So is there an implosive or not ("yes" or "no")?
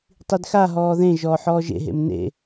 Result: no